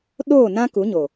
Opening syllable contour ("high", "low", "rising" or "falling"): falling